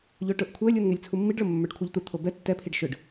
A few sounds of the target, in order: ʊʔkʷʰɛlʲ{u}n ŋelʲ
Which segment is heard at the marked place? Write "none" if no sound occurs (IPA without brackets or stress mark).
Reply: u